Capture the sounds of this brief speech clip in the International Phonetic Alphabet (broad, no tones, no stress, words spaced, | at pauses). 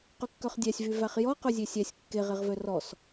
qʉkːœχdʲæsʲvy væχjɔ qʉzʲesʲæsʲ kːeʁeʁvø rɔs